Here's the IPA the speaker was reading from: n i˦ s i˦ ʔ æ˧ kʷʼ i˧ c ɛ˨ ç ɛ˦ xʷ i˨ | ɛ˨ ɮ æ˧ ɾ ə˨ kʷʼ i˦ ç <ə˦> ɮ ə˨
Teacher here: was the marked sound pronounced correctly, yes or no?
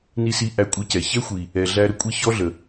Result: no